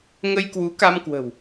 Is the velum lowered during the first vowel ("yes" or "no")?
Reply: no